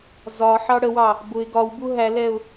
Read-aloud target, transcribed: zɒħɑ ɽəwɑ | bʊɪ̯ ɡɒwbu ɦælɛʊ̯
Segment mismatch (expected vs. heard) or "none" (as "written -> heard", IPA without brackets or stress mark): none